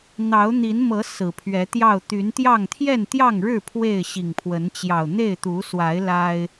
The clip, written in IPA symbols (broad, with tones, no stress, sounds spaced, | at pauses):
n̪ ɑ˨˦ ʊ̯ n̪ i˨˦ n m ɤ˨˦ s ɹ̩˨˩ pʰ ɥ ɛ˨˦ t̪ j ɑ˥˨ ʊ̯ t̪ y˨˦ n t̪ j ɑ˥˨ ŋ t̪ʰ j ɛ˥˨ n t̪ j ɑ˥˨ ŋ ɻ ɻ̩˥˨ pʰ w e˥˨ ɪ̯ ɕ i˨˩ ŋ pʰ w ə˨˦ n t͡ɕ j ɑ˨˩ ʊ̯ n̪ e˥˨ ɪ̯ t̪ u˨˦ s w a˨˦ ɪ̯ l a˦ ɪ̯